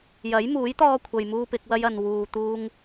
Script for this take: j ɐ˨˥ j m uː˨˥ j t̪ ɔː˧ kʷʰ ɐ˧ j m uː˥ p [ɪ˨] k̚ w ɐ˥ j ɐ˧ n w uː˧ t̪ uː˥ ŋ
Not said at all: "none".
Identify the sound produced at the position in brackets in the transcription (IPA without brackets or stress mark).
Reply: ɪ˨˥